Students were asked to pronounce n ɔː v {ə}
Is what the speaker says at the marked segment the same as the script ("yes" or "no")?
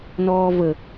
yes